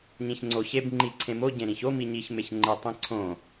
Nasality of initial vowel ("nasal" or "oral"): nasal